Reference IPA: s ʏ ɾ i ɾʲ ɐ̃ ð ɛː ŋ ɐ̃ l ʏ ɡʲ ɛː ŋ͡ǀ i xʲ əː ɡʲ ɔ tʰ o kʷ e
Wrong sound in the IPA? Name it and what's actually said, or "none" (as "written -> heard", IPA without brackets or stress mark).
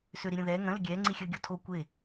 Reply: none